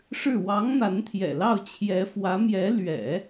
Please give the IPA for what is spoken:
ʂ ɻ̩˥˩ w ɑ˧˥ ŋ n̪ a˧˥ n t̪ʰ j ɛ̰˨˩ l ɑ˥˩ ʊ̯ t͡ɕʰ j ɛ˧˥ f w ä˧˥ m j ɛ˧˥ l ɥ ɛ̰˨˩˦

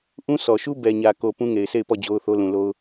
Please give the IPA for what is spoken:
ʔ ũ˦ sʰ ɔ˨ ʃ u˦ b ɛ˨ ɲ ä˨ k o˨ p ũ˦ ŋ e˨ ɪ̯ s e˦˨ ɪ̯ p ɔ˦˨ d͡ʑ o˦ ʊ̯ θ o˦ l ũ˨ l o˦ ʊ̯

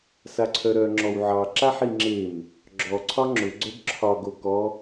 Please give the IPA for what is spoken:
s a ǀʰ œ ɾ œ ŋ͡ǁ ɔ w ʕ ɑ ǁ a ħ i ŋ͡ǁ e m | ɡ͡ǁ ɔ ǀʰ ɒ ŋ͡ǁ ʊ ɡ͡ǀ œ b ǁʰ ɒ ɡ o k ɔ

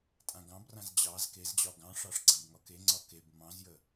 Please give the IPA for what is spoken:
tʼ ã ɡ ɑ̃ b r ã z d͡ʑ ɑ z k e z d͡ʑ ɒ ɡ ɑ̃ ʂ ɑ ʂ ɡ͡ǀ ã b ŋ ɒ k e ŋ͡ǀ ɒ k e b m ɑ̃ z j ə

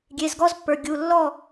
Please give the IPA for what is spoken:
ɡʲ e˩˧˩ z ɡ ɔ˥ z pː ə˞˩˧˩ ɡʲ u˩˧˩ lː ɔ˥˨

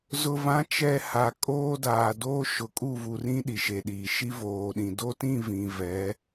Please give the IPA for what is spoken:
z ʊ˨ v ã˨˦ t͡ʃ ɛ˨ h a˨ kʼ oː˦ d aː˨ d oː˦ ʃ ʊ˨ kʼ u˦˨ v u˨ r ĩ˦ ɗ i˨ ʃ e˨ ɗ iː˨ ʃ i˦ v oː˨ ɗ ĩ˨ d o˦ t ĩ˦˨ v ĩ˨ v ɛ˨˦

